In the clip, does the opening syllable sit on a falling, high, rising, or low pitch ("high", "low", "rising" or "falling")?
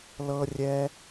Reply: high